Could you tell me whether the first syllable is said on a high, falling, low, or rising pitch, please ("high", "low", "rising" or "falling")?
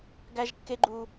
high